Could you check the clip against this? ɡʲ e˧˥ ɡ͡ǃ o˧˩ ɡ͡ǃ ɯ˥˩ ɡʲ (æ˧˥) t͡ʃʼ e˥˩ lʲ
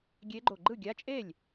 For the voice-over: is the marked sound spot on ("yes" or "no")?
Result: no